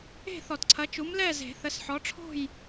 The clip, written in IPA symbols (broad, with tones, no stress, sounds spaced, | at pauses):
e̤˥˨ θ ɔ˨˩˦ t ǀʰ ɐ˨˦ t͡ʃ u˨˦ m l ɛ˥˨ z e̤˨˩˦ θ ə˨˦ s ħ ɔ˨˦ ʈ͡ʂʰ o̤˥˨ j